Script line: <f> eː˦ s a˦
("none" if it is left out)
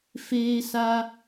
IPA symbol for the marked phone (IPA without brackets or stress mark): f